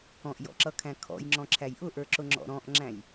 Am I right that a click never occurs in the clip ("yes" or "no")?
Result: no